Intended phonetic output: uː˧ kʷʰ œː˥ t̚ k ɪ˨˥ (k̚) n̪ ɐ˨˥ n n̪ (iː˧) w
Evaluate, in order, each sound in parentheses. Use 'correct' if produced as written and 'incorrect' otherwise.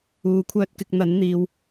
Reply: correct, correct

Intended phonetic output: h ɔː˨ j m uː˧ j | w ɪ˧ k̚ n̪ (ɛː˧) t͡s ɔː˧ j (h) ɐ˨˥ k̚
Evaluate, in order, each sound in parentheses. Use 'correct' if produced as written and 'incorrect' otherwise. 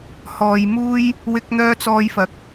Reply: incorrect: œː˧, incorrect: f

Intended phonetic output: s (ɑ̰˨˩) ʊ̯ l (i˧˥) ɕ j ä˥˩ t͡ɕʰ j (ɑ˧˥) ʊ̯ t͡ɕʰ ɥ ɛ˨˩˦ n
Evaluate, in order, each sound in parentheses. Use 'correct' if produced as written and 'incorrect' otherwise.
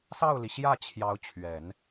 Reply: incorrect: ɑ˥˩, incorrect: i˩, correct

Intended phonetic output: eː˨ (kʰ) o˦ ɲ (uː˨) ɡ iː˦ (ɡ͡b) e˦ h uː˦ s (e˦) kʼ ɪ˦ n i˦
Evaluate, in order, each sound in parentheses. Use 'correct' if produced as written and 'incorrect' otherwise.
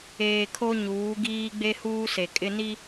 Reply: correct, incorrect: uː˨˦, correct, incorrect: e˨

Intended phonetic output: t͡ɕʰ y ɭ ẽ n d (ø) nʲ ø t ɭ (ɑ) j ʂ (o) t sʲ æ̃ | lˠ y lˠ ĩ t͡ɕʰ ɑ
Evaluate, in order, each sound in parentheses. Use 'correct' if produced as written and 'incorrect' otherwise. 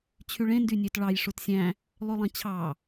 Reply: incorrect: y, correct, incorrect: u

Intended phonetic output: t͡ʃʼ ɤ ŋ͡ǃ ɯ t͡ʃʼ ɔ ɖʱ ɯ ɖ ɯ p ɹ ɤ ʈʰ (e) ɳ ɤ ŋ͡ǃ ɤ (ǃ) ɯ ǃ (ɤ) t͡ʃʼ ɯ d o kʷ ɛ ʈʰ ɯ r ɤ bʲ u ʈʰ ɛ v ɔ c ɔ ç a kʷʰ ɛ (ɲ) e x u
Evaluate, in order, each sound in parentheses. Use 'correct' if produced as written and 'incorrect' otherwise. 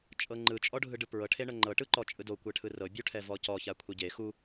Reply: correct, incorrect: ʈ, incorrect: ɔ, incorrect: ɟ

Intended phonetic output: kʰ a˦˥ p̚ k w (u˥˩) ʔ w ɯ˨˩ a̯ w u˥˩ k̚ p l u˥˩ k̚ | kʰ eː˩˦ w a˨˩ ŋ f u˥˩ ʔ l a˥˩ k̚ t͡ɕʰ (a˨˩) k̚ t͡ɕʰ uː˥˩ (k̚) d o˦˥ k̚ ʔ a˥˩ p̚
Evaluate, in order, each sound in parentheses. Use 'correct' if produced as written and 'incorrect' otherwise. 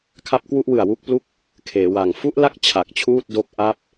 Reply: correct, correct, incorrect: t̚

